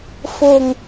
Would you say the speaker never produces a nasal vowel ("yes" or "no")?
yes